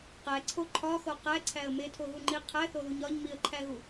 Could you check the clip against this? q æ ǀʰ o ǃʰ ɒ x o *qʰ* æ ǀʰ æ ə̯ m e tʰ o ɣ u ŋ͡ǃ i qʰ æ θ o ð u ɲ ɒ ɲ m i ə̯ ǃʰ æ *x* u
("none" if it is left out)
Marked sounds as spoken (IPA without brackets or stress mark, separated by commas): q, ɣ